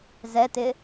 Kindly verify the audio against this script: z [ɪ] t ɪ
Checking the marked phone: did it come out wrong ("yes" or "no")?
yes